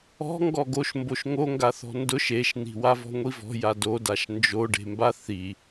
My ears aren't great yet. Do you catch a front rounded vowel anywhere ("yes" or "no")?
no